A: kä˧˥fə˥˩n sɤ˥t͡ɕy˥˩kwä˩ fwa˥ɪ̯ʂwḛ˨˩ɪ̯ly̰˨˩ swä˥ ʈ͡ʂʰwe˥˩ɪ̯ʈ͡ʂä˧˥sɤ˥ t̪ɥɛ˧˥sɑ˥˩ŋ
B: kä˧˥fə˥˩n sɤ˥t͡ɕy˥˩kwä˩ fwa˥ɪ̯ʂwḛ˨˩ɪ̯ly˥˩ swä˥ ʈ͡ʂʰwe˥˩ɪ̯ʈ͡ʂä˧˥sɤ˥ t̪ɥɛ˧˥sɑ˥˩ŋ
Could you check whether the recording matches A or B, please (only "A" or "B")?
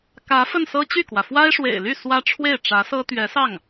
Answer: B